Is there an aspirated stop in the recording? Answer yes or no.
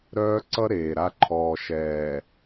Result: yes